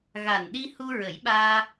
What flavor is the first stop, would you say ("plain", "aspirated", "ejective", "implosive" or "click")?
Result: implosive